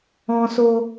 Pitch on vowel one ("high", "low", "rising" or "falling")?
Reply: high